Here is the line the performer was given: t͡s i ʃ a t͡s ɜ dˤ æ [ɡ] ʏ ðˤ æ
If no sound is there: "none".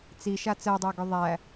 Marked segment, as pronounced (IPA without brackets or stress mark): ɡ